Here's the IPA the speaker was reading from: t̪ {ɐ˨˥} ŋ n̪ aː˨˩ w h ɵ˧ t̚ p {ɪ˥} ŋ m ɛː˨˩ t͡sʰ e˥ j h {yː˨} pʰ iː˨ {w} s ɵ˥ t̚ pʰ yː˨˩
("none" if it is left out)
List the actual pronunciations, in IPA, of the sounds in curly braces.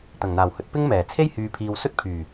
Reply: ɐ˨˩, ɪ˥, yː˨, w

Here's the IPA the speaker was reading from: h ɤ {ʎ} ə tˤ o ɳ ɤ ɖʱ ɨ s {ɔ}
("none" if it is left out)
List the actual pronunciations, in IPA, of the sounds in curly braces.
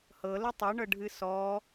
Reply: l, ɔ

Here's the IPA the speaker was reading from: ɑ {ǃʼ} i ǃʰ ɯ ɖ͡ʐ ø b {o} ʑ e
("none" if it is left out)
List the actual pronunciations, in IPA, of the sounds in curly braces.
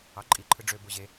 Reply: ǃʼ, o

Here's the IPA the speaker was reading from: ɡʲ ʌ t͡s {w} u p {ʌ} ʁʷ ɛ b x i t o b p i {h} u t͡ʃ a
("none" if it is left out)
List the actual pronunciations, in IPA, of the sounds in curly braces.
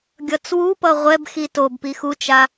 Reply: w, ʌ, x

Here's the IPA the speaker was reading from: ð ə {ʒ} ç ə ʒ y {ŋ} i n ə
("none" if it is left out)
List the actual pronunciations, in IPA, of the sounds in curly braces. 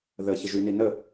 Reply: none, n

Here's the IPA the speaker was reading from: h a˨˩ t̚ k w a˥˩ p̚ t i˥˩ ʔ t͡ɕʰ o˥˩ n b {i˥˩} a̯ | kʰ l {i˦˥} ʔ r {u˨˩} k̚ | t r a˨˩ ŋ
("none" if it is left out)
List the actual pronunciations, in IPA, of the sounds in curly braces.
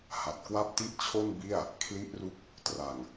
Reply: i˥˩, i˦˥, u˦˥

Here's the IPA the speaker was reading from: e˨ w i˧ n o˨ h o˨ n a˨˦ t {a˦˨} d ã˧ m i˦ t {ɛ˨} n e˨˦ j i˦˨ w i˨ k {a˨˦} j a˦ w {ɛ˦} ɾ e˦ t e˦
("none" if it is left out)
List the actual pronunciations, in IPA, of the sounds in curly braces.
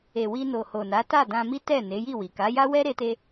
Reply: a˦˨, ɛ˦˨, a˨˦, ɛ˦

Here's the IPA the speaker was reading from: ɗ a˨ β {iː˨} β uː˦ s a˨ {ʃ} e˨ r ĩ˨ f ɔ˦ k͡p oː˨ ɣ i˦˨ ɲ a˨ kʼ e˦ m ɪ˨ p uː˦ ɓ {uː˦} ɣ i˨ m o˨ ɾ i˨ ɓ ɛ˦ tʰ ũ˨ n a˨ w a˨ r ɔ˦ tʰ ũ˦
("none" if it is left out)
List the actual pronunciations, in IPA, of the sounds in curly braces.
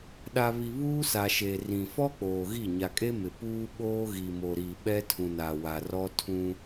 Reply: i˨, ʃ, oː˦

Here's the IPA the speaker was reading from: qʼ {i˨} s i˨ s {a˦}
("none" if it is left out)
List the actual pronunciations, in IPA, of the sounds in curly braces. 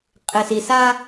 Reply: ɪ˨, a˦

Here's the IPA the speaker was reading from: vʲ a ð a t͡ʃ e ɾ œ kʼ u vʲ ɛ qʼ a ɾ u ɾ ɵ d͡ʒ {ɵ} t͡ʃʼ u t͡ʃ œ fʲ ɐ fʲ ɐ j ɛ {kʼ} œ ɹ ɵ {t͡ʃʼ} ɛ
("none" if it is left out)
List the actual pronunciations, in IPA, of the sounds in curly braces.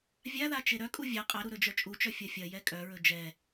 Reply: œ, kʼ, d͡ʒ

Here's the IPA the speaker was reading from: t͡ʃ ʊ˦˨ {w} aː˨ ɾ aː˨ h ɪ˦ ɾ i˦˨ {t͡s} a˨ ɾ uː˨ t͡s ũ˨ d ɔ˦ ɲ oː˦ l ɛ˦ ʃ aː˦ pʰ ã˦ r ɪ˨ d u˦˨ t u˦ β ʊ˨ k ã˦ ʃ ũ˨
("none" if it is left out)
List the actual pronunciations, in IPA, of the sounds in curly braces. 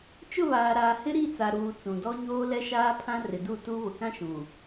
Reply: β, t͡s

